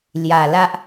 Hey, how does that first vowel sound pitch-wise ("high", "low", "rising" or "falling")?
low